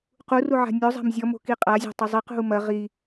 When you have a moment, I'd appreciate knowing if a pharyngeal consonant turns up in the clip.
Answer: yes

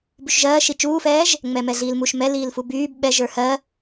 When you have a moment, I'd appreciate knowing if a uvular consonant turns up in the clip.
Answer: no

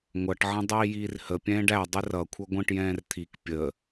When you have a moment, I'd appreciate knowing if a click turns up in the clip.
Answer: no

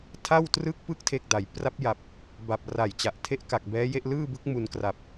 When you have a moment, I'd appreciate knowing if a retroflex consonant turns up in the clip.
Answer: no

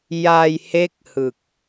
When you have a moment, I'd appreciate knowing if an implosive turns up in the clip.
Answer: no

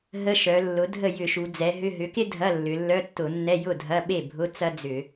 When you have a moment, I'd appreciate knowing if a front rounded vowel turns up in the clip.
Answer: yes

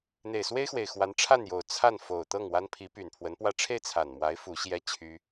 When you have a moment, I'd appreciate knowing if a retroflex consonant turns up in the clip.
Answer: yes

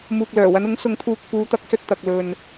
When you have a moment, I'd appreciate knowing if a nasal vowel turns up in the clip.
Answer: no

